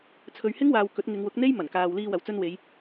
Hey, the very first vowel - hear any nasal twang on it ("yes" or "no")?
no